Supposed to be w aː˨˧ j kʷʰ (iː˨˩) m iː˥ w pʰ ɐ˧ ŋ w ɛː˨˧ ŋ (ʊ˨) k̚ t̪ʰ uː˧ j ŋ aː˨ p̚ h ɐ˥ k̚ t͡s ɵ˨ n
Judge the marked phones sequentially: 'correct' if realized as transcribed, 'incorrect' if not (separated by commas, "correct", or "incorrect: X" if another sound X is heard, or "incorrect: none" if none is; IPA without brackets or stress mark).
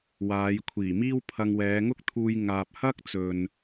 correct, incorrect: ʊ˥